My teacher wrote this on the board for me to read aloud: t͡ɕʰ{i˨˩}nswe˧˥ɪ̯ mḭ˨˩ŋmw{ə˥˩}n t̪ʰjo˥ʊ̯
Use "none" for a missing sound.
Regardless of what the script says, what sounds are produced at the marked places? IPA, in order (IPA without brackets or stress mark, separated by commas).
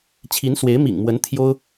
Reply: i˧˥, ə˧˥